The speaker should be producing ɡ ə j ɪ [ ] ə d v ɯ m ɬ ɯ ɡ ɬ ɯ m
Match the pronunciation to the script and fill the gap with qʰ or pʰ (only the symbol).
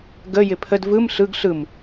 pʰ